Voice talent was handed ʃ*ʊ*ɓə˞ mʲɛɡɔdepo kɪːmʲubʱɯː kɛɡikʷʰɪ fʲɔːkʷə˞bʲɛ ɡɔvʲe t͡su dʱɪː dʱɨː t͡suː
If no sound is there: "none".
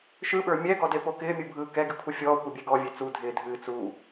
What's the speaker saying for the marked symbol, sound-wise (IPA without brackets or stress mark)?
ɯ